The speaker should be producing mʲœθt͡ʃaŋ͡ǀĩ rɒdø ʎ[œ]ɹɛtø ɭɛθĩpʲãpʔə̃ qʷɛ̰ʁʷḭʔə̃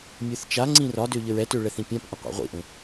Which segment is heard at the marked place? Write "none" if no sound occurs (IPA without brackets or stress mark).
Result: ə